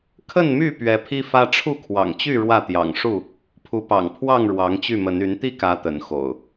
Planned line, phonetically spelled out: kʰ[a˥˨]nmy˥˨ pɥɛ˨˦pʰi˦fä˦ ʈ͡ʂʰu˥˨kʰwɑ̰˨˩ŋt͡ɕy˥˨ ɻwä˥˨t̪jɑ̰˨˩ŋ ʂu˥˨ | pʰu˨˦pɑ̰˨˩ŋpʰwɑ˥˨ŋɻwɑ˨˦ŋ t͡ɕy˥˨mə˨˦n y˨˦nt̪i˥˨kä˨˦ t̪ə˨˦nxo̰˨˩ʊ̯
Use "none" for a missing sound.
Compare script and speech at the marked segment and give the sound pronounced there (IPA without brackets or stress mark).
ə˥˨